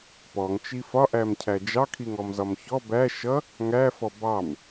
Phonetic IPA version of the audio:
pɔŋt͡ʃi fɒʔæmcʰæ d͡ʒɑkʰiŋɔmzɒm çɔ bæ ʃʌ | ŋæfɔ bɑm

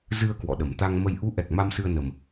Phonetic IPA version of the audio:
zɨ˧ə̯ kwɔ̰˧˨ɗə˨˩m t̪a˧ŋmə˧j ʔu˨˦ʔɛ˨˩k̚ ma˧msɨ˧ə̯ nə˧m

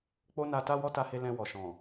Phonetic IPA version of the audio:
k͡po˦na˧ta˦ wɔ˦ta˧he˧ lɛ̃˧ wɔ˨ʃɔ̃˨

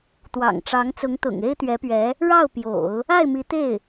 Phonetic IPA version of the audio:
t̪wɑ̰˨˩ŋʈ͡ʂɑ˧˥ŋ t͡sʊ˧˥ŋt̪ʊ̰˨˩ŋ e˥ɪ̯t̪ɥɛ˧˥pɥɛ˧˥ | ɻɑ˥˩ʊ̯pjo̰˨˩˦ʊ̯ | a˥˩ɪ̯mi˧˥t̪e˥˩ɪ̯

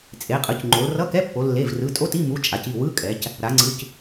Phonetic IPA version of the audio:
t͡sʼe˩˧qʼɯ˩˧c ŋ͡ǃo˩˧lrʌ˧˥˧kɛ˧˥˧pːo˩˧ lːe˩˧˩vrɯ˩˧˩tʼo˧˥˧t i˧˥˧mu˩˧˩ t͡ʃʼa˩˧ci˩˧˩ wɯ˧˥˧ kʼɛ˩˧c | ɾa˩˧ ŋ͡ǀɯ˩˧˩c

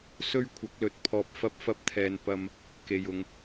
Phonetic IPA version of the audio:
sɵ˥ɥkʷʰɐ˨˥k̚lɵ˨˥t̚pʰɔː˧p̚ fɐ˥p̚fɐ˥p̚t̪ʰɛː˧n pɐ˧m | ke˨j ʊ˨ŋ

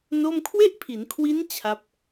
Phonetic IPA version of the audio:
no˥˩m kʰwe˥˩ʔpʰi˩˦nkʰwi˦˥n t͡ɕʰa˦˥p̚

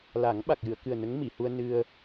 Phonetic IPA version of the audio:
la˨˩˦ŋ ɓa˨˩k̚jɨ˨˩˨ə̯kɨ˨˩ə̯ nə˧˥ŋmi˨˩˨hu˧ə̯ nɨ˧ə̯

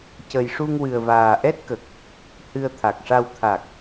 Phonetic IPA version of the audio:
cə˨˩jʂu˧ŋwɨ˨˩ə̯ vaː˨˩ʔɛ˦˥t̚kə˨˩k̚ | hɨ˧ə̯ t̪ʰa˨˩k̚ʂa˧w t̪ʰa˨˩k̚

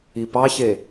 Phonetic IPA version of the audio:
ipɑçe

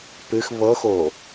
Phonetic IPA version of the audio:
pɨx βɤxo

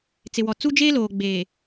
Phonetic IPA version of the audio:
t͡sɪ˨wɔ˨t͡su˦d͡ʒeː˦ loː˨ɡ͡beː˨

